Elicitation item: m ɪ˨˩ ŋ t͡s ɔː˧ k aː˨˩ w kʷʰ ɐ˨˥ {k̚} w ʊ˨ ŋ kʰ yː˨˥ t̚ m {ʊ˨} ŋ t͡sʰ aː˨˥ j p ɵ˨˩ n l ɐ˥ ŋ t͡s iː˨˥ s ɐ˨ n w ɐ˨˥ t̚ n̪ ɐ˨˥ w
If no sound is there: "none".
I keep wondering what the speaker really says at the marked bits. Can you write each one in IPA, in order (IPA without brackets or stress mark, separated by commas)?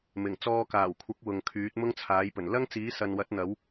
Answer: k̚, ʊ˥